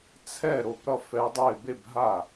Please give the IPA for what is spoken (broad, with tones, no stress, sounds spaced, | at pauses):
t͡sʰ ɛ˥˧ ɾ o˥˩ p ɾ ʌ˥˧ f ɛ˦˥ dˤ e˥˧ b e˥˧ b ɦ a˥˩